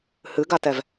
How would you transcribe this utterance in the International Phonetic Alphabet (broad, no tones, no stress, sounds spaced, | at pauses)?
h ɨ ɡ a t ɛ v